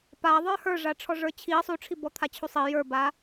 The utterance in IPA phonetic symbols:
p a ðˤ ə˞ h ə˞ ʐ a ʈ͡ʂʰ ɔ ʐ ə˞ t͡ɕʰ i sˤ u ʈ͡ʂʰ i b ɔ t̪ʰ a t͡ɕʰ u sˤ i j ə˞ b a

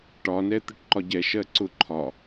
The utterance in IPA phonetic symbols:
ʈ ɒ n ɛ t̪ ə ʈ ǃ ɒ ɟ ɛ ʃ ɜ ǀ ʊ ǃʰ ɒ

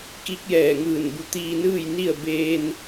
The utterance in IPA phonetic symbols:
k i˧˥ k̚ j ɛː˧˩ ŋ ɯː˧˩ n b u˧˩ t̪ iː˧ n ɯː˥˨ j n i˥˨ ə̯ b eː˧ n

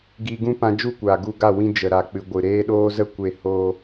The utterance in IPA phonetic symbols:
ɡ iː˧ ɡ ũ˦ p ã˧ d͡ʒ u˦˨ kʷ aː˨ ɡ u˧ ɡ a˦˨ w ĩ˧ d͡ʒ ə˨ ɾ a˨ k͡p ɨ˨ ɡʷ ɨ˨ ɾ eː˧ ɗ oː˧ z ə˦˨ kʷ e˦˨ h oː˦

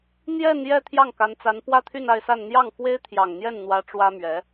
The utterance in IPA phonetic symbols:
n̪ j ɛ˥˧ n j ɛ˥˧ t̪ʰ j ɑ˥˩ ŋ k a˧˥ n t͡s a˧˥ n p w ä˥˧ t̪ʰ y˥˧ n a˥˧ ɪ̯ s a˥˧ n n̪ j ɑ˥˩ ŋ f w e˥ ɪ̯ t̪ʰ j ɑ˨˩ ŋ n̪ j ɛ˥˩ n n̪ w ä˧˥ ʈ͡ʂ w ä˥ m ɥ ɛ˧˥

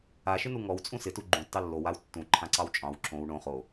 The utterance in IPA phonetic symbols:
a ʃ ɪ n u ŋ ɔ w t͡sʼ ũ s ɪ t u ɡ͡ǃ ũ tː ɑ lː o w a w tː ũ ǃʰ ã ǀ ɑ w t͡ʃʼ ɑ̃ w ǁ õ w ɳ õ χ o

